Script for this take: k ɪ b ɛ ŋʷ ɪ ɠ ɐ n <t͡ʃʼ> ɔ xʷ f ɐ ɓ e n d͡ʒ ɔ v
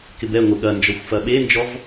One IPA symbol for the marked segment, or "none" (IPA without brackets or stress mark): d͡ʒ